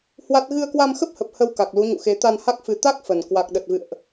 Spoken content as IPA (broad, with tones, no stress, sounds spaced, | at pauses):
h w a˦˥ t̚ ɣ ɨ˧ ə̯ k w a˧ m x ə˦˥ p̚ h ə˨˩ p̚ h ə˧ w k a˨˩ k̚ l u˨˦ ɲ ṵ˧˨ x e˨˦ t̪ a˧ n h a˦˥ k̚ f ɨ˨˦ t̪ a˦˥ k̚ f ə˨˩ n k w a˨˩ k̚ ɗ ə˨˩ t̚ v ɨ̰˧˨ ə̯ ʔ